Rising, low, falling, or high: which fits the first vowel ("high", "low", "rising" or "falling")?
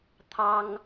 high